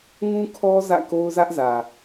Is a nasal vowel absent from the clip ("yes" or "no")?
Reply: no